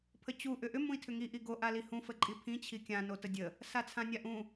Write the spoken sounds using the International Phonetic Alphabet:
pʰət͡ɕu ʔʏʔʏ mũi̯tʰʏŋi ʔiɡo ʔalihũ fəǃʼipʰĩ t͡ɕʰikʲã notədʲə | sat͡sʰãnʲaʔũ

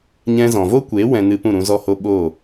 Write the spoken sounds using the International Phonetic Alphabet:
ɲɛ̃˧zɔ̃˨vo˦ kʷe˨˦ wɛ̃˧nɨ˧ pũ˦˨ɾũ˧zɔ˦˨ho˦ ɓo˦˨

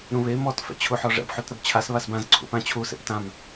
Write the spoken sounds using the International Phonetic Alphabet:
ɾũβe mɔt fɛ̰t͡ɕʰuħɔʐɛ̰b ħutɾəbt͡ɕʰas βasbãz ǀʰṵpãt͡ɕʰu sḛptãm

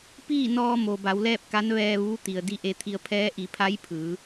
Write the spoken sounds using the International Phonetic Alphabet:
piː˥˨ nɔː˧mo˩ba˩˧w lɛː˥˨p̚ka˧˥nʋɛː˧ʋuː˧˥ t̪i˩ə̯di˥˨ʔe˧˥t̪ʰi˧ə̯ pʰɛː˧˥ʔi˩˧pʰa˧˥j pʰɯː˩˧

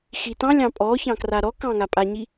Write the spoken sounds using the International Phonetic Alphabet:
xitɑ̃lʲɑ̃ pʼɔçɑ̃ kraɾɔkɑ̃ ŋapʼaɲi

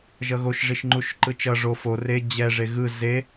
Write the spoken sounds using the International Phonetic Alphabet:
ʒʌɣoʃ ʐiʃŋ͡ǃuʃǃɯt͡ʃʌ ʐo fo re d͡ʑɛ ʐeɣɯ ze

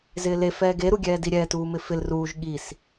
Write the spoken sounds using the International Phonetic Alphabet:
zɪːle fɛːɡe ɾuɡʲɛːdiɾʲɛ tuːmɪfɪl ruːʒ ɠis

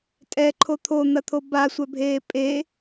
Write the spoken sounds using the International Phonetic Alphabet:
tʼɛǃʰo t̪ʰon̪ɐt̪ʰo basʷœbʱeː pʼe

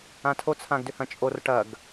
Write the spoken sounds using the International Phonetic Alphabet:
ãtʰo t͡sʰãɡdʏhɐ̃t͡ʃʼor ʈɐɡ

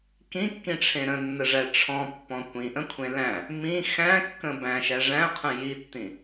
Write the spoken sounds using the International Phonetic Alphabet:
kĩkːĩʈ͡ʂʰẽ ɾə̃nːəʐæ ʈ͡ʂʰɔ̃pːɔ̃ kʷĩʔə̃kʷʰẽ læ̃ | mĩ xæ̃kːə̃ bæ̃ʃæ ʐæ̃qʰə̃ jitːĩ

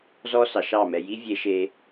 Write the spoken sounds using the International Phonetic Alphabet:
zɔ˦sɑ˨ʃɑ˦˨ mɛ˨ji˦ vʲe˦ʃe˦

